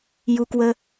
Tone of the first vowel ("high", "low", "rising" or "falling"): low